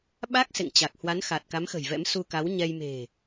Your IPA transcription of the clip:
ɓ a˦˥ k̚ s ḛ˧˨ ŋ t͡ɕ a˨˩ k̚ h w a˨˦ n x a˨˩ t̚ k a˨˦ m x ə̤˨˩ j v ɛ̰˧˥ m s u˧ k a˨˦ w ɲ ɛ˧ j m e̤˨˩

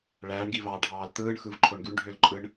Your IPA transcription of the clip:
ɭ æː ɳ ɡ i v ɑː ɖʱ ɑː l t̪ ɯː ɳ x ɯ v ǃʰ o ɳ ɡ y ɳ ɖʱ ø l ǃʼ ɯ ɳ

